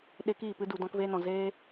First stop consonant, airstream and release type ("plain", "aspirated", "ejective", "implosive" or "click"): implosive